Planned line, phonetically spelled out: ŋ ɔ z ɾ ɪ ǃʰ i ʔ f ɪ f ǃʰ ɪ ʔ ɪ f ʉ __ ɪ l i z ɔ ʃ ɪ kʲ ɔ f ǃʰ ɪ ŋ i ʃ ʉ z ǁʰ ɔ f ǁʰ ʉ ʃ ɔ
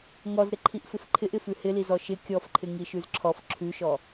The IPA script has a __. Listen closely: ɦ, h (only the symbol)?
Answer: h